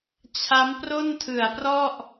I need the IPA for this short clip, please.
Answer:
t͡ɕʰ a˦˥ m p r o˥˩ n tʰ ɯ˨˩ a̯ p r ɔ˥˩ ʔ

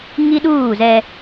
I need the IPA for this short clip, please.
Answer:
ŋ i˦ ɗ uː˦˨ z ɛ˦

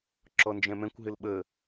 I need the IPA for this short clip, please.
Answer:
ǁ ɔ n d͡ʒ ɛ̃ m ɛ̃ kʷ ɦ ɪ l ɓ ə

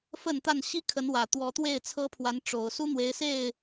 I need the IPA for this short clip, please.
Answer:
f ə˥˨ n t̪ a˥˨ n ɕ i˦ kʰ ə˨˦ n w ä˨˩ t̪ w ɔ˨˦ t̪ w e˥˨ ɪ̯ t͡sʰ ɤ˦ pʰ w a˨˦ n ʈ͡ʂ o˨˩ ʊ̯ s u˦ n̪ w e˨˦ ɪ̯ s e˥˨ ɪ̯

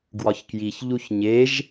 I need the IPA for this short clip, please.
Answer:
ɡ w ɒ ç k j i ç ʎ u ç ɲ e ʒ

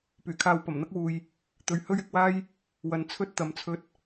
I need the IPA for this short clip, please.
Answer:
p yː˨˩ kʰ aː˧ w p ɐ˨˩ m n̪ ɐ˥ k̚ w uː˨ j | t̪ ɵ˨ ɥ h ɵ˥ ɥ ɪ˧ k̚ w aː˥ j | w ɐ˨ n t͡sʰ ɵ˥ t̚ t̪ ɐ˨ m t͡sʰ ɵ˧ t̚

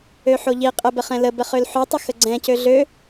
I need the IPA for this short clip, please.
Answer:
ø ħ o ʎ i qʼ ə b ə χ ɛ̃ l ə b ə χ ø l ħ ø tˤ ə x ə ɡ͡ǀ ɛ̃ c ø ɮ ø

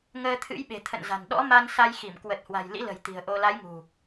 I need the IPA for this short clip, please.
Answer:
ŋ əː˧ t̪ʰ ɨ̰˧˥ j ɓ e̤˨˩ t̪ʰ ə̰˧˨ n z a̤˨˩ n ɗ ɔ̰˧˥ m a˧ n s a˧ j x i˧˩ m k w ə˨˩ t̚ h w a̤˨˩ j l ḭ˧˥ l ə̤˨˩ j t̪ i̤˨˩ ə̯ ʔ o˧ l a˨˦ j ŋ ṳ˨˩

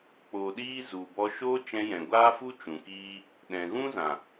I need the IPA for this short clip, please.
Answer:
k͡p o˨ ɗ iː˦ z u˨ b ɔ˧ ʃ o˦ t͡ʃ ɛ̃˧ j ɛ̃˨ ɡʷ aː˦ f u˦ t͡ʃ ũ˨ k iː˦ | ɗ ɛ̃˨ ɣ ũ˦ z ã˨

